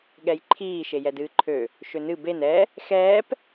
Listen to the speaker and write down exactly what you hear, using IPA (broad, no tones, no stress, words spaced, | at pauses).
ɠɛjǃʰiː ʃejɛdɨːǃʰø | ʃønɨ ben ɛ | xɛːp